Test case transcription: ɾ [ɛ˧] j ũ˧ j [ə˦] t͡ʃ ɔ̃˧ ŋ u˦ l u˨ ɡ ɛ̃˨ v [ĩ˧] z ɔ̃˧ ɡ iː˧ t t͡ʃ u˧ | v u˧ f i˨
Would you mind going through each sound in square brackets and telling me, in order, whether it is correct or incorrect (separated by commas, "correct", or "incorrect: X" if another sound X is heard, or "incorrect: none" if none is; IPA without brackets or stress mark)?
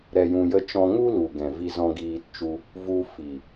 correct, correct, incorrect: i˧